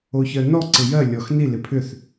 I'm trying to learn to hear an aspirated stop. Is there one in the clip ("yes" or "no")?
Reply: yes